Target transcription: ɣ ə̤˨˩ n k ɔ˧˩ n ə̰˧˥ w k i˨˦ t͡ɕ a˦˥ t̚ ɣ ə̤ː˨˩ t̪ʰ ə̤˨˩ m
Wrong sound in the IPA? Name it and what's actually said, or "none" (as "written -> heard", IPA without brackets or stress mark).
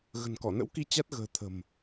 none